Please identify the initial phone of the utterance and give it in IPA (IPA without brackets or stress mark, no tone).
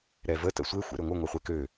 ɾ